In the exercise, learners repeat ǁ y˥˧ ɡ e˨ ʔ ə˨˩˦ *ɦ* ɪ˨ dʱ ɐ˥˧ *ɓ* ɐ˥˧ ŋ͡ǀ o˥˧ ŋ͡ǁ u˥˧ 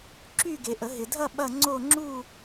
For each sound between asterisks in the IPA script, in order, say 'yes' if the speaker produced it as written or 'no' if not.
yes, yes

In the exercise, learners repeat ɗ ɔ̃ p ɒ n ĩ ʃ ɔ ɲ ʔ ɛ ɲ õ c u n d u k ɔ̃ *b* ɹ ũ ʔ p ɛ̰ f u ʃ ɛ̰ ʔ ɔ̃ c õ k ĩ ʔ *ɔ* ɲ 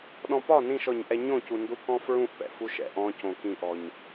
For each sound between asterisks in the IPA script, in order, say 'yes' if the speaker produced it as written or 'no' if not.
no, yes

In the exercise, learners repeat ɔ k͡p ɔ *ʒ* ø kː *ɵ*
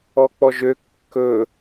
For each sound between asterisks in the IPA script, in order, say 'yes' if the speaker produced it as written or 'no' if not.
yes, yes

